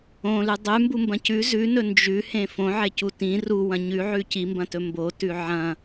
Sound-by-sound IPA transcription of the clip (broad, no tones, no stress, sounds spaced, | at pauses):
õ l ʉ dˤ ʉ m b u m b ɐ̃ c ʉ z ʉ n ɵ n d͡ʒ ʉ h ẽ f õ ʕ e c u t ĩ r u w ɐ̃ ɲ ʉ ʕ ʉ c i m b ɐ̃ t ɵ m b o t ʉ ʕ ɐ̃